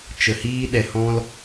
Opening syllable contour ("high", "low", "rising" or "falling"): low